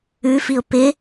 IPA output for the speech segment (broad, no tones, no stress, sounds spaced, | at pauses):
ʉ f i ʊ̯ p ɪ